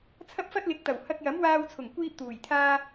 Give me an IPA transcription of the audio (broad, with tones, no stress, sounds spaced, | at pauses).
t͡sʰ ɐ˥ p̚ f ɐ˥ t̚ l ɪ˨˥ k̚ t̪ ɐ˨˩ w h ɐ˧ k̚ j ɐ˨˥ m w aː˧ w t͡sʰ ʊ˨˩ ŋ kʷ iː˥ p̚ t̪ uː˨˩ j t̪ʰ aː˥